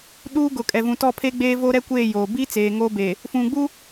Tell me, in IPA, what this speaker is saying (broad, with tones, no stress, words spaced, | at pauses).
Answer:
ɗuː˦ ɡʊ˨kʼɛ˨vũ˨ tɔ˦˨pʰe˦ ɡ͡beː˦vo˦ɾɛ˦kʷeː˦˨ joː˨ bi˦ t͡seː˨ŋoː˦be˨ | fũ˨ɡ͡bu˦